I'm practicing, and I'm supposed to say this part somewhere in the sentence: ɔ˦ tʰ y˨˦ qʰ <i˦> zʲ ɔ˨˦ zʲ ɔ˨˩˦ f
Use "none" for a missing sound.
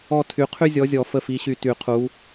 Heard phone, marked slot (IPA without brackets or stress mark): y˦